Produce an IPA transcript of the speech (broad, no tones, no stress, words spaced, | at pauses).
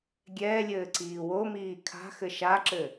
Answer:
ɡʲɛːlʲɘː ǀiːwomiː kʰa̤xɘ ʃaǁɘ